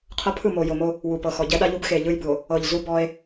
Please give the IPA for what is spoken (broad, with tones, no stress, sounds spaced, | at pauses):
qʰ ɤ˦ pʰ ɯ˦˨ m o˨ j o˨ m o˦ | w u˨ p ɤ˨ x ɔ˨ ɟ ɛ˦ ɗ a˦ ʎ u˦ b x e˨ ʎ ɯ˦ j b ɯ˨ o̯ | ɤ˨ ʎ z u˦ b ɔ˦ e̯